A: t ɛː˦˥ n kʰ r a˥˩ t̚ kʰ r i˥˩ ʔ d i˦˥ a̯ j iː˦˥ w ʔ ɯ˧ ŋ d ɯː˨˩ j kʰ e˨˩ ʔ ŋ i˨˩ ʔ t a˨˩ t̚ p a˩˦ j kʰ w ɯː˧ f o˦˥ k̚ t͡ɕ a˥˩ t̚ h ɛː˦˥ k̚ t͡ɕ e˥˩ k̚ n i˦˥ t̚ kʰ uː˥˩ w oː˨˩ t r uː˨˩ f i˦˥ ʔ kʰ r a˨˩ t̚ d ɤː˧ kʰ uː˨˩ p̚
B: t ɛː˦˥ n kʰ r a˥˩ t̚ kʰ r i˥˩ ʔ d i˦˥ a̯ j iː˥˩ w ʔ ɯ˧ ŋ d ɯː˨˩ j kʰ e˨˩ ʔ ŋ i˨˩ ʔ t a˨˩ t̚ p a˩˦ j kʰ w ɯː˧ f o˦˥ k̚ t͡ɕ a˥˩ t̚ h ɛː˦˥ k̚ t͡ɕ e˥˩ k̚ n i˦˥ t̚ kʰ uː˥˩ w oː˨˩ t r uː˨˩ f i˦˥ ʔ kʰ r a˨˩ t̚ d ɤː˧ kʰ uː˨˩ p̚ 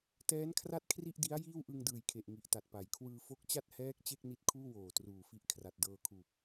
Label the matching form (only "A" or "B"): B